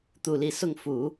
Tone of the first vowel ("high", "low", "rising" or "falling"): falling